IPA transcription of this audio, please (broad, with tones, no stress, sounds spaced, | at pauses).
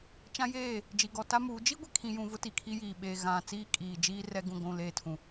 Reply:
t͡ʃ ã˦ j eː˦˨ | d͡ʒ i˨ ɡ ɔ˨ t a˦ m uː˨˦ d͡ʒ i˦ ɡʷ ɛ˨ kʰ ĩ˨ j ũ˨ v ʊ˦ t i˨ kʰ i˦ j iː˨ ɓ eː˨ ɣ ã˨ t͡s iː˦ kʼ iː˨ d͡ʒ iː˦ r ɛ˦ ɡ ũ˦˨ ɡʷ ũ˦˨ l eː˦ tʰ ũ˨